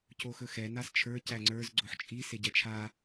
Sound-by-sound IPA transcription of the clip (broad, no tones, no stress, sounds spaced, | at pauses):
c o x ɵ x ɛ n a s t͡ʃʰ ə˞ c æ ŋ͡ǀ ə˞ z ɡ͡ǀ o ħ t͡ʃʼ i s e ɟ ɛ t͡ʃʰ a